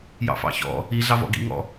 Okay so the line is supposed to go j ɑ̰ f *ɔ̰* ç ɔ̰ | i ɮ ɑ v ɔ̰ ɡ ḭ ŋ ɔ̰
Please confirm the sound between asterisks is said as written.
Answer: no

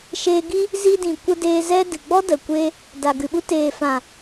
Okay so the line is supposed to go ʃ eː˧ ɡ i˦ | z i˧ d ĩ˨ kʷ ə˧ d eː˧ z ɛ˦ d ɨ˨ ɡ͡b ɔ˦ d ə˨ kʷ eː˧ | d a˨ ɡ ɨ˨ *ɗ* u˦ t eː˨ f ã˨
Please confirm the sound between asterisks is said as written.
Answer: no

